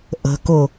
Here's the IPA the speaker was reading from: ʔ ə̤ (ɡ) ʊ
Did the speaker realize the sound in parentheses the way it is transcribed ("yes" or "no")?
no